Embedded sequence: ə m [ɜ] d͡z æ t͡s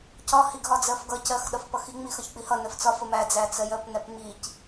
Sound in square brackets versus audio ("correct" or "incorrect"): incorrect